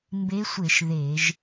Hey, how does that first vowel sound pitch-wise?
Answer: rising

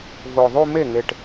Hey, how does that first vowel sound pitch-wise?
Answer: low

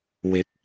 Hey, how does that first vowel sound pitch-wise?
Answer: rising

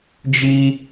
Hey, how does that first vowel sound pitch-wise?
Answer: high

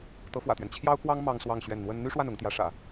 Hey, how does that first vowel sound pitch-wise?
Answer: rising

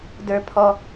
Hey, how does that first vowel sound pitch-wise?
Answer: high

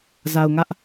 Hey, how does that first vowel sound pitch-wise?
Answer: low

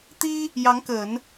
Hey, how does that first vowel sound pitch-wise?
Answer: high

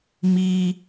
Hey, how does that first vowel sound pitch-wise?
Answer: low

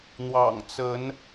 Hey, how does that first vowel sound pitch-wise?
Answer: low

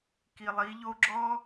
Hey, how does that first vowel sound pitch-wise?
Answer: low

